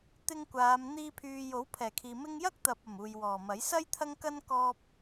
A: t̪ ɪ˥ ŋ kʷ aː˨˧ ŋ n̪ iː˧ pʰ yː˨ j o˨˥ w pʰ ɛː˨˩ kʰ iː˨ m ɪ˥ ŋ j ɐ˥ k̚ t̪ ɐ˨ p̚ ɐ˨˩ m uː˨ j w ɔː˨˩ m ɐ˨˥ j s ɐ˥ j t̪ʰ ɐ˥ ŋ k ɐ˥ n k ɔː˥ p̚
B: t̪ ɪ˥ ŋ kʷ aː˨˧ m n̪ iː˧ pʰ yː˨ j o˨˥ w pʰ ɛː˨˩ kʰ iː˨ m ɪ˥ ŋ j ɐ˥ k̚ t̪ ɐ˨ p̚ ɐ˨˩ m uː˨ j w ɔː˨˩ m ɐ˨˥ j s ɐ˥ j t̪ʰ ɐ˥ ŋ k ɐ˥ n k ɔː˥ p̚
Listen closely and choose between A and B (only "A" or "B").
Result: B